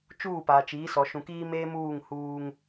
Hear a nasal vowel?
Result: yes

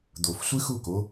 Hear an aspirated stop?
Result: no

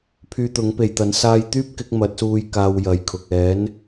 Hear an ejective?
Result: no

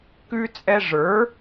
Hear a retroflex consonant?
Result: yes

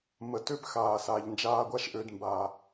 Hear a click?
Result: no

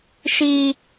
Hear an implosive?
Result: no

